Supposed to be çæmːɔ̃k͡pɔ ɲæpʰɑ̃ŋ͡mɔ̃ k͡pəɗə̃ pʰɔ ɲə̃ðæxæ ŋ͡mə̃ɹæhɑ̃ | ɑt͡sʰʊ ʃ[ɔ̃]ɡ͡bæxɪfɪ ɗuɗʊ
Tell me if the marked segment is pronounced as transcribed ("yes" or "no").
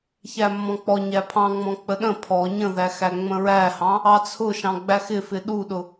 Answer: no